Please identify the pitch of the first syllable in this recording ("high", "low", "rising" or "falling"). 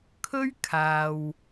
high